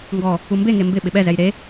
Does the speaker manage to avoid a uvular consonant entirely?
yes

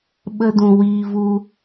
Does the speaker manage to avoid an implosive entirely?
no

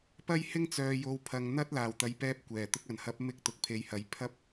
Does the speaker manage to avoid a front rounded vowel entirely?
no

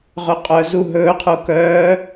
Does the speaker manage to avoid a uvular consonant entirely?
no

